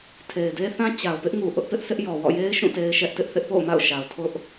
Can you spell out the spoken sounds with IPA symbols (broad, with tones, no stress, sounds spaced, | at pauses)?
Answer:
tʰ e˨ ɪ̯ d e˦ θ ã˦ t͡ɕ a˨ ʊ̯ p ɪ˦ ʔ ŋ u˨ ʔ ʊ˦ ʔ p ɪ˦ ʔ sʰ ɪ˦ ʔ j ɔ˨ w ɔ̰˦˨ j e˦ ɪ̯ ʃ ũ˦˨ t e˦ ɪ̯ ʃ ɛ˦ ʔ t ɪ˦ ʔ θ ɪ˦ ʔ p o̰˦˨ ʊ̯ m a̰˦˨ ʊ̯ ʃ a˨ ʊ̯ tʰ ʊ˦ ʔ